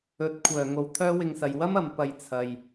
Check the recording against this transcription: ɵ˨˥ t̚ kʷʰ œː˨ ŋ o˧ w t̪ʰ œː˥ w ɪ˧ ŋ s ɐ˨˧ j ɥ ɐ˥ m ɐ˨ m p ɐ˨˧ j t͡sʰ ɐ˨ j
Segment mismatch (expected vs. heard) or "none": ɥ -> w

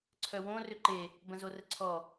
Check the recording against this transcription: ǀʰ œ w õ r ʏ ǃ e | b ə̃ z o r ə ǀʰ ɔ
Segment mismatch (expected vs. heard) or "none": none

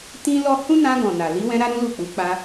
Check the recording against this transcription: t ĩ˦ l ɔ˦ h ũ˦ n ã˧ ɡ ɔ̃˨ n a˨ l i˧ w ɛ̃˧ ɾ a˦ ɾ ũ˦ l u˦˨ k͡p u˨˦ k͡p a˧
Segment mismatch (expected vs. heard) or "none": none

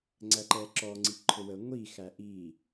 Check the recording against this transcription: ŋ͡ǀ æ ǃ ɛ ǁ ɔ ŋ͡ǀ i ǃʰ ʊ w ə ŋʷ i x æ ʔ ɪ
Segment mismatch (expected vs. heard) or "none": ɪ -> i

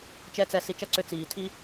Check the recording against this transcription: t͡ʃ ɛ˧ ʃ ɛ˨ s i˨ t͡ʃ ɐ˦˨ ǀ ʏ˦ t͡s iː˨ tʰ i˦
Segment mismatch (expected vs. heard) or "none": ʃ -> t͡s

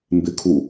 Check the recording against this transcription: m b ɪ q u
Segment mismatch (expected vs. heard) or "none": q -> kʰ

